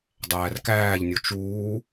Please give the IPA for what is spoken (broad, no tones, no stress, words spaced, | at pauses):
dˤæːrkæːʎnʲo t͡ʃuː